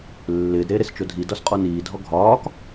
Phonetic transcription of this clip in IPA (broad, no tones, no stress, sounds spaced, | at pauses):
lː ɪː d ɾ eː ɾ e s t͡ʃ o dʱ i d ɒ s qʼ ɔ n iː dʱ ɔ ɡʱ ɒː k